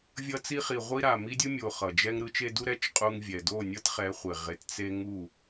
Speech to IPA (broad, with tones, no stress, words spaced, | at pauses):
vʲʌ˧t͡si˧χi˨ ʁʷi˦ɾa˨ mi˧dʲɯ˧ mʲo˨ χʌ˨d͡ʒɛ˦ŋ ɾɯ˨˦t͡ʃe˧du˦ ɾɛ˦t͡ʃqʼu˧ŋ vʲɛ˨ do˦˨nʲʌ˦tχɛ˨˦χʷe˨ ʁe˧t t͡se˦ ŋu˦˨